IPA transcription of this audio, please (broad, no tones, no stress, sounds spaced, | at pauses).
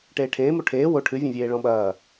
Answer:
ʈ eː ʈʰ ẽː m o ʈʰ eː w o ʈʰ ɨ vʲ ẽ vʲ eː ɭ ɔ̃ ɓ ɐː